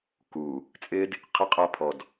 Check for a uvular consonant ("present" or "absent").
present